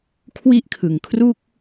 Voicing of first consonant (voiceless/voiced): voiceless